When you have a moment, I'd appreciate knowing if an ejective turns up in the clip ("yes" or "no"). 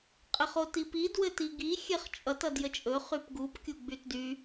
yes